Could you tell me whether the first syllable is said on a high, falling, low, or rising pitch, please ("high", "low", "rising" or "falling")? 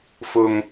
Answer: high